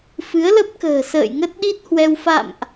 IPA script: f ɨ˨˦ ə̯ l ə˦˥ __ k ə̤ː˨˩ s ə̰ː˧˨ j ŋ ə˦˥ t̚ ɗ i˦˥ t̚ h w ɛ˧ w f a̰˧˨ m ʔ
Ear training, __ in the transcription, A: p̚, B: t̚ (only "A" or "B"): A